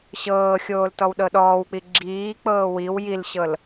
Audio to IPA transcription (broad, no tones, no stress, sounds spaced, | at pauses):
ɕ ɤː xʲ oː l t ɔ w ɗ ɤ ɗ ɔː w k͡p i ɡ͡ǁ iː k͡p ɤː w i w j i l ɕ ɤ l